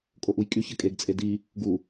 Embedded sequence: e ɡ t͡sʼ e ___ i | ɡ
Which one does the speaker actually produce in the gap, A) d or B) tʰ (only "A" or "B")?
A